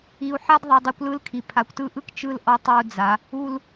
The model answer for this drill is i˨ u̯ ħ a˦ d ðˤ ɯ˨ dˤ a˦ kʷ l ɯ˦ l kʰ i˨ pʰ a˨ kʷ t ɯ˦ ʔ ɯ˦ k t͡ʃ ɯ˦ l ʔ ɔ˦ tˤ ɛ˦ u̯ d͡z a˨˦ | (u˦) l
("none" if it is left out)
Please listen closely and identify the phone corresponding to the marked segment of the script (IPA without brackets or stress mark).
u˦